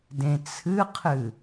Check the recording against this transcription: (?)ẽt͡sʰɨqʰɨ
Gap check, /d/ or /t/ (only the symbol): d